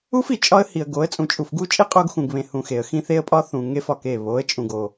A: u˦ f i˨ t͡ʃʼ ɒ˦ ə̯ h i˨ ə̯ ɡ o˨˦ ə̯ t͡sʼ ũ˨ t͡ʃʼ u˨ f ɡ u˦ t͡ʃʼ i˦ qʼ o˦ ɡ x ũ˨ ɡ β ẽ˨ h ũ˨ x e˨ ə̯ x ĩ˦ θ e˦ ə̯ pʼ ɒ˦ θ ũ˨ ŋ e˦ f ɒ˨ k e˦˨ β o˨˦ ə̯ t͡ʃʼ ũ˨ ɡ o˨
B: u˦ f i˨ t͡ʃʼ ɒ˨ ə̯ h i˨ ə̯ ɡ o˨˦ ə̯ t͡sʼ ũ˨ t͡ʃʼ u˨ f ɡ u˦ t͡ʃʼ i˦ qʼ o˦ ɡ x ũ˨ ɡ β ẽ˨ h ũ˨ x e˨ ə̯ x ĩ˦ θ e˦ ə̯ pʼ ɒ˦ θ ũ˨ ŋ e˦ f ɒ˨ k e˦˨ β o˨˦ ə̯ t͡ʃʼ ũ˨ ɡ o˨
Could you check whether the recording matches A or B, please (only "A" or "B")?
A